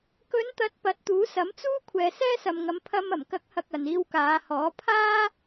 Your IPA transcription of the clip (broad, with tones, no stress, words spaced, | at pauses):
kɵ˨˧nt̪ɐ˨˥t̚ pɐ˨˥t̚t̪uː˨˥sɐ˨˥mt͡suː˥ kʷʰɛː˨sɛː˥sɐ˨mŋɐ˨˧m pʰɐ˧m ɐ˨˩mkɐ˨˥k̚hɐ˨k̚ ɐ˨niː˧wkaː˨˧hɔː˨˥ pʰaː˥